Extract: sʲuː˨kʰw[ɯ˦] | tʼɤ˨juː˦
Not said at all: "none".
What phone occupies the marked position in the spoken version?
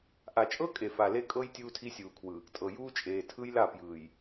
ɯ˨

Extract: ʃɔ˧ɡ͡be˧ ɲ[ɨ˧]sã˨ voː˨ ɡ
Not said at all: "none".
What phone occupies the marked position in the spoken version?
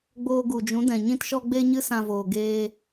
ɨ˧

